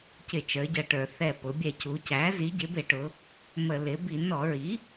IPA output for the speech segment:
c ɪ˧˩˧ t͡ʃ ə˞˩˧ ɟ ʌ˨˩ ʈ ə˞˧˩˧ θ ɛ˨˩ p ʊ˩˧ bʲ ɛ˧˩˧ c u˩˧ c æ˩˥ z i˩˥ ɟ ɪ˩˥ b ɪ˧˩˧ ʈ ʊ˩˧ | m ə˧˩˧ l ɪ˩˥ b i˧˩˧ n ɔ˧˩˧ ɹ i˩˥

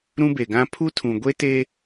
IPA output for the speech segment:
ɾ ũ˦ b e˨ ɡ ã˦ pʰ u˦ tʰ ũ˨ ɡʷ e˦ t e˦

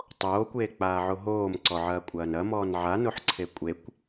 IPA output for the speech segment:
tˤ oː kʷ eː k͡p aː ʕ o ɦ oː m ǀ ɔ ʕ ɐː kʷʼ ɐː n ɐ m ɔː n ʕ a n o ħ ǀʰ e kʷʼ e kʷ

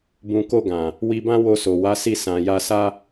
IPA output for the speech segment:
b ũ˨ k o˧ ɡ ã˨ | w i˧ b ã˦ w o˧ s o˨ w a˨˦ s i˦˨ s ã˨ j a˧ s a˦

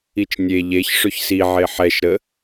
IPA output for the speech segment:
i t͡ʃ nʲ e ʎ e ç ʂ ɵ ç s i ʕ e ħ ɛ ʃ ɾ ə

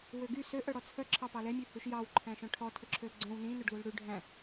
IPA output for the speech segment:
w ø ɡ y s ø ʔ œ ɽ ɔ t͡sʰ œ ǁʰ ɑ p ɑ l ɛ mʲ ʉ h ʉ ʃ j ɑ w ǃʰ æ̃ ʃ œ̃ ʈʰ ɔ tʰ ø ǁʰ ø l ɡ͡ǀ œ̃ w n ĩ n ɵ ɖ l u l ɽ ʉ ɖʱ æ̃

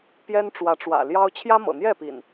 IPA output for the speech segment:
p j ɛ˦ n ʈ͡ʂ w ä˨˦ ʈ͡ʂ w ä̰˨˩ l j ɑ˦ ʊ̯ t͡ɕʰ j ä˦ m ɤ̰˨˩ n̪ j ɛ˥˨ p ḭ˨˩ n

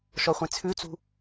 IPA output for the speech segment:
ʃ ɔ χʷ ẽ t͡sʰ ʉ t͡s ṳ

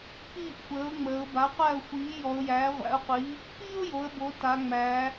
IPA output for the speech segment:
p iː˥˨ ʔ xʷ əː˩˥ ʊ̯ ŋ͡m əː˩˧ ʊ̯ b a˩˥ qʷ æ˥˨ ʊ̯ xʷ iː˩˥ j ɔ˩˧ ʊ̯ j æː˩˥ ʁʷ æ̰˩˥ ʊ̯ qʷ iː˩˥ | p iː˥ ʊ̯ j o˩˧ ə̯ b o˩˧ t a˩˧ ŋ͡m æː˩˧

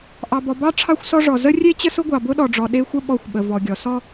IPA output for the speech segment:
ʔ ɑ˨ b ɔ˨ b ɑ˦ ʈ͡ʂʰ ɑ˦ xʷ s ɔ˦ ʐ ɔ˨ z ə˦ rʲ e˦ t͡ɕ ə˦ s ʊ˦ ɡʷ ɑ˨ b ʊ˦ ɗ ɔ˨ ɖ͡ʐ ɔ˨ ɗ e˦ xʷ ə˦ ɓ ɔ˦˨ xʷ ɓ ə˨ v ɔ˨ ɡʲ ɔ˨ s ɔ˦

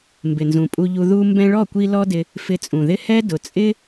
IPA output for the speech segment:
m b ɪ˨ n z ũ˨ pʼ u˧ ʎ u˧ ð u˧ m b ɛ̃˧ ɭ ɔ˦˨ kʷ i˧ l ɔ˦ d ɪ˧ | f ɪ˧ t͡sʼ ũ˨ ð ɪ˦ h ɛ˦ d ʊ˨ t͡sʼ ɪ˦

